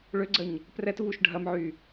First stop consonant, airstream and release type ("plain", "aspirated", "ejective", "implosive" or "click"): click